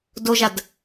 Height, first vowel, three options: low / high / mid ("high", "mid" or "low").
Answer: mid